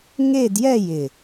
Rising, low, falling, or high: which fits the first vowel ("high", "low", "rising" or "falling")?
falling